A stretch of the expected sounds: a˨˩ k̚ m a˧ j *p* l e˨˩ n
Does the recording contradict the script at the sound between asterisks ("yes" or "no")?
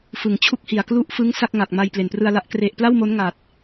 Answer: no